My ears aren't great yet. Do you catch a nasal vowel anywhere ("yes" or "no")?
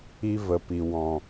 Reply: yes